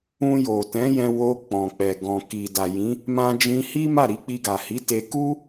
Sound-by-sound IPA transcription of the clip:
ũ˧jo˨tɛ̃˨˦jɛ̃˧ wo˧ k͡pɔ̃˨k͡pɛ˨ ɡɔ̃˨ki˨da˨ jĩ˨˦ | mã˧d͡ʒĩ˧hi˦ ma˦˨ɾi˨˦k͡pi˧ ɡa˨hi˨˦ te˧ku˦

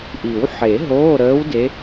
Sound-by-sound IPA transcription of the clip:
ʔi˨˩˦wħe˨˩˦ ɦoː˧˥˧ɾəː˧˥w de˧˥

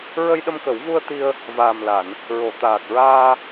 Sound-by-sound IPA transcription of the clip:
ɹə˧jɗə˧mkə˨˩˦wvu˧ə̯ t̪i˧ə̯ | vaː˨˩mla˨˩˨n | ɹo˨˩˨t̪aː˨˩k̚ɹaː˧

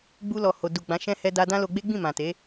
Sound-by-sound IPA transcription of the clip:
ɡ͡bu˧lɔ˨ ho˨ du˨ ɡ͡bã˨˦ʃɛ̃˦ hɛ˧da˧ dã˦lo˧ɡ͡be˦ɡ͡bĩ˦˨ mã˨te˨˦

